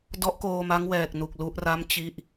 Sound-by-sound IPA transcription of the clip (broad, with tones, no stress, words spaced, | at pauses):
dɔ˦˥ʔkoː˧ma˦˥ŋ wɛː˨˩k̚nu˨˩k̚ lu˦˥ʔra˥˩m t͡ɕi˥˩ʔ